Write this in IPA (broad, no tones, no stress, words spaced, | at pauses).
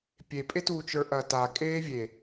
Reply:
pʲepʼetuː t͡ʃə˞ʔɐːta kʼeːvʲe